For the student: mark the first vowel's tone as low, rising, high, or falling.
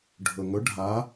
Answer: low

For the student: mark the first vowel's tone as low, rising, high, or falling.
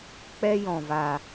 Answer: high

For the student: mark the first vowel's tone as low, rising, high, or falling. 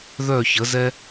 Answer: falling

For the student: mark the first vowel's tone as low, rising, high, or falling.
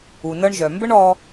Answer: low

